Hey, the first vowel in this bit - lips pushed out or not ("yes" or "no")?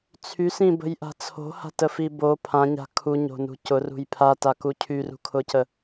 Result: yes